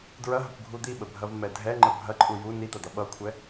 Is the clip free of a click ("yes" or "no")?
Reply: no